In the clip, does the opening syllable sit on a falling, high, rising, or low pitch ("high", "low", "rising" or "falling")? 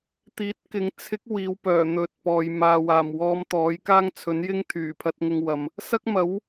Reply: rising